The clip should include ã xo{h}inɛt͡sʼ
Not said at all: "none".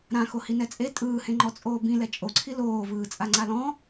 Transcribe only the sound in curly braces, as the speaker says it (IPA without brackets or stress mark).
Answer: h